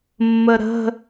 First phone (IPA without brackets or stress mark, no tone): mː